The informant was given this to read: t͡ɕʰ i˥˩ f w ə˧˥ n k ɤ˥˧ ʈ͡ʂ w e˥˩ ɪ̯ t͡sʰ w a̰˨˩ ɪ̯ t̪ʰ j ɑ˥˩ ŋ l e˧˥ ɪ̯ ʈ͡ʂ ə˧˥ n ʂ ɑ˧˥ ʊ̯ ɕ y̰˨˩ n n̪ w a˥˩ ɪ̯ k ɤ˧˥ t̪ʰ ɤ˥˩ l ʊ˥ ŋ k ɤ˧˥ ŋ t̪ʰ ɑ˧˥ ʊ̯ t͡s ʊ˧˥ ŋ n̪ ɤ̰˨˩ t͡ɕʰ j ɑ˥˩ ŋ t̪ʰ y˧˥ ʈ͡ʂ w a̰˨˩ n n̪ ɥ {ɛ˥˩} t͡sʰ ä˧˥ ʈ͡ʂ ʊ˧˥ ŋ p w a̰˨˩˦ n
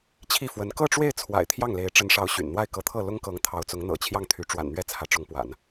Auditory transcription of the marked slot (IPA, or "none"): ɛ˥˩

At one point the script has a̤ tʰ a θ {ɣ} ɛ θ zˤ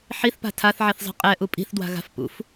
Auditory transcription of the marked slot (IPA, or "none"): ʕ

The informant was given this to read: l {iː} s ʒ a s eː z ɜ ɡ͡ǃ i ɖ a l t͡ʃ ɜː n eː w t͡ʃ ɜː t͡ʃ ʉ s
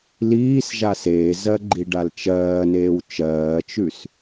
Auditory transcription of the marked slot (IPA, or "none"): iː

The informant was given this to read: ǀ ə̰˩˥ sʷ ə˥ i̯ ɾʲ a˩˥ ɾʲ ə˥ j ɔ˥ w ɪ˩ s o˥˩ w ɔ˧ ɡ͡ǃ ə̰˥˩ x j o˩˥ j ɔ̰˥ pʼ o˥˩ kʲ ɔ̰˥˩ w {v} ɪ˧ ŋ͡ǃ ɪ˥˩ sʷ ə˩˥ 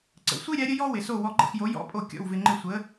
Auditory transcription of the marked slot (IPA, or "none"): v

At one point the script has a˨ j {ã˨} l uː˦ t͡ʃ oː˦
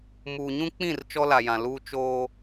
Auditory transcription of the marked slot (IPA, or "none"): ã˨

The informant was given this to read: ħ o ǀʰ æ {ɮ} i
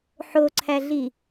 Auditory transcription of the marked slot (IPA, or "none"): ɮ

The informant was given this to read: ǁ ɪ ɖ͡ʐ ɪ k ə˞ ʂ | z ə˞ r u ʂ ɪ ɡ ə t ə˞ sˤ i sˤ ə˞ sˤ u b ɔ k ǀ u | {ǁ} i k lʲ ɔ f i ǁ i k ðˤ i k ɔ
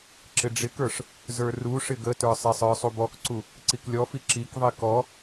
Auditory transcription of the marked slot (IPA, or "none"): ǀ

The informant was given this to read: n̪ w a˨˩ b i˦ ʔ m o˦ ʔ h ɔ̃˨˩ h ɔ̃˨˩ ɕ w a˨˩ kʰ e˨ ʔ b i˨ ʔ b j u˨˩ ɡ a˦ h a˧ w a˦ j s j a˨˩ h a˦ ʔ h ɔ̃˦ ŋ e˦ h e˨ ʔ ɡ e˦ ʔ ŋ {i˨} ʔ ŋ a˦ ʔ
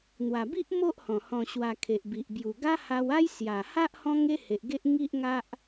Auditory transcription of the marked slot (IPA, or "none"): i˦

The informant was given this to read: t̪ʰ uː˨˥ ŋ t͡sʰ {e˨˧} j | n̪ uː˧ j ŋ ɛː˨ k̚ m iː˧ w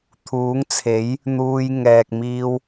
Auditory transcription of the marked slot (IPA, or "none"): e˨˥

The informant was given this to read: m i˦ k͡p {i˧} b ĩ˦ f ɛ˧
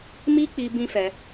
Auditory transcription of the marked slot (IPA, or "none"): i˧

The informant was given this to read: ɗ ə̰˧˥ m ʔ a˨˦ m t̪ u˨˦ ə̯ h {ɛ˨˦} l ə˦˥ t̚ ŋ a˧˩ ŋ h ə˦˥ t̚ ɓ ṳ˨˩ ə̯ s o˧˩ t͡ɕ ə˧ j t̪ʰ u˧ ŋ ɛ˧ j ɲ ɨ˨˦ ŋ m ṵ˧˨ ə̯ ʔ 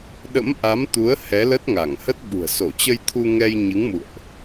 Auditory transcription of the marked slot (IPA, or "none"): ɛ˨˦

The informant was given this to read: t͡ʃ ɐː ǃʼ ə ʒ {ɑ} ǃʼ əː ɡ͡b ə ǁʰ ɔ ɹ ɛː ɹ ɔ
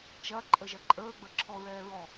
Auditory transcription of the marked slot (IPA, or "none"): ɐ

